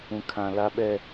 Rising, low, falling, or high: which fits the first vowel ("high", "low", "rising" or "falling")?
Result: low